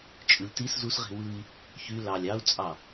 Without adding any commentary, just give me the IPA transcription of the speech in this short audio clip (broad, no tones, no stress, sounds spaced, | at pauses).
t͡ʃʼ ɯ lʲ t i s z u s ʁ i̤ w ɯ i̯ | ç y l ɑ lʲ ɑ u̯ t͡sʼ ɑ